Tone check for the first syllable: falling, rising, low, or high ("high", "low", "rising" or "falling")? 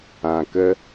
low